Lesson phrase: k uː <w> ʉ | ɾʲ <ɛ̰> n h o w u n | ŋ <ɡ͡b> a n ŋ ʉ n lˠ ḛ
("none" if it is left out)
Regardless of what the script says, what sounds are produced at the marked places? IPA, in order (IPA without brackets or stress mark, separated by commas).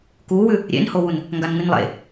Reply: w, ḛ, ɡ